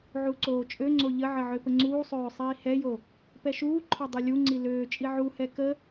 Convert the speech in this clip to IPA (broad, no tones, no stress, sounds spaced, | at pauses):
ʕ u ǀ oː t͡ʃʼ ø ŋ͡ǀ o ʎ ə ʕ ə ʕ ø p ə ŋ͡ǀ uː sˤ øː sˤ iː h ɛ j o | p ɛ ʃ uː ǃʰ ɔ dˤ ɛ lʲ u ŋ͡ǀ i l øː t͡ʃʼ i ʕ u h ɛ k ə